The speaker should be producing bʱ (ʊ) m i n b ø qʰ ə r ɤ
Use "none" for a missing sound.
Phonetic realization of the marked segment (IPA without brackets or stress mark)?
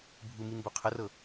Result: u